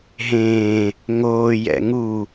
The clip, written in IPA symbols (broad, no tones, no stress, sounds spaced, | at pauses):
ɦ ẽː | ŋ oː j ɛ̰ ŋ u